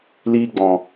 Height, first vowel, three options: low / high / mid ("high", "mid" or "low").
high